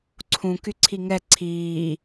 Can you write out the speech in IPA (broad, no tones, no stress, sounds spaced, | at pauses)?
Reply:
ǀʰ ũ k y ǀʰ i ŋ ɛ ǀʰ iː